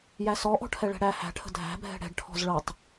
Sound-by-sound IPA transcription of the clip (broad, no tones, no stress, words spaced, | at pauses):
jæsɔʔɔ̤ ʈʰɛɭɛ̤ɽæ hæ̤ʈʰə̤ dʱæ̤bʱɛ̤ ɽɛ̤ɖʈʰɔ̤z ɭɤtˤ